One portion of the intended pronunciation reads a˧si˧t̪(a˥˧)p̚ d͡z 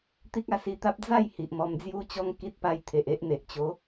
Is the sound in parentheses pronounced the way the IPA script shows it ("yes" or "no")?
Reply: no